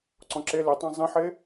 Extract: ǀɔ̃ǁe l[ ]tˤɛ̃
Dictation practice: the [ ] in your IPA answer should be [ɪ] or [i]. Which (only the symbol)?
ɪ